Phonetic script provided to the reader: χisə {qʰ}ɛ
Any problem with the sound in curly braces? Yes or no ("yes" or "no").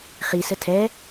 yes